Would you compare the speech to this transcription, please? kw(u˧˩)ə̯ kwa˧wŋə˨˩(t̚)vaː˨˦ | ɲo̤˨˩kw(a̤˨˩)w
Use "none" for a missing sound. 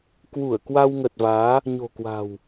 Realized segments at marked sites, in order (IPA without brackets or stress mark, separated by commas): u˧˩, t̚, a̤˨˩